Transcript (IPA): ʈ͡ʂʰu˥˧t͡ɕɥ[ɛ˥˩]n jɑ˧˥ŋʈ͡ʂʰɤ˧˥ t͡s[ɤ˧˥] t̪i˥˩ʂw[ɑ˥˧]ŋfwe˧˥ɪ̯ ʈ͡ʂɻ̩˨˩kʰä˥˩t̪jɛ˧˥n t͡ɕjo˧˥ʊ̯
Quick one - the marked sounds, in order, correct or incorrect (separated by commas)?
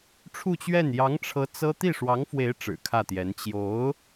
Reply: correct, incorrect, incorrect